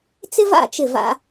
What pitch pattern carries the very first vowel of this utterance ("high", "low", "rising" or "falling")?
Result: high